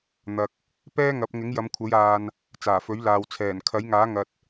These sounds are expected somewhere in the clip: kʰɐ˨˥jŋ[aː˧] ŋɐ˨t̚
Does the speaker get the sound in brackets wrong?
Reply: yes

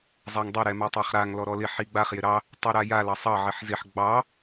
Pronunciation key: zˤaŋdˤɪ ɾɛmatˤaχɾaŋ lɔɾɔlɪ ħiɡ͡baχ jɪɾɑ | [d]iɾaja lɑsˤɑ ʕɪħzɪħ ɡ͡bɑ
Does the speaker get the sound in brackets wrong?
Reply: yes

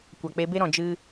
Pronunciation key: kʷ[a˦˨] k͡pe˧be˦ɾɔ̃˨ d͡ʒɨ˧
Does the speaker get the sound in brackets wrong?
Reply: yes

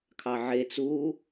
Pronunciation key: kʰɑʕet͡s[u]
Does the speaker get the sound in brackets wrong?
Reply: yes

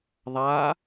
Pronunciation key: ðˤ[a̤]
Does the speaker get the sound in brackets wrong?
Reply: yes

